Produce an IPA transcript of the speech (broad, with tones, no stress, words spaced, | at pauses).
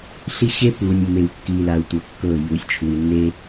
ɬi˦ ɕe˦ pu˨nʲ mːe˨wkːi˨la˨u̯ tʷɤ˨kːɤ˦˨ ju˨sʲt͡ʃʰu˨i̯ nːe˦